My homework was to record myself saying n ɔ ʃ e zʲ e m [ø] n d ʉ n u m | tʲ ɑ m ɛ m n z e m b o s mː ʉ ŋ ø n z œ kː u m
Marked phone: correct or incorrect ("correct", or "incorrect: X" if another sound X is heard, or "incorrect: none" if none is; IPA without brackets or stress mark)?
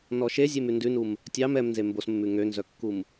incorrect: ʉ